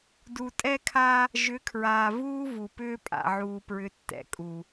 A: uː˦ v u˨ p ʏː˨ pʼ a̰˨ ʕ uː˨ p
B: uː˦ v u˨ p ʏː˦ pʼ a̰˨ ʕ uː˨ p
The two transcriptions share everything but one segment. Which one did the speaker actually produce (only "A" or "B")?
B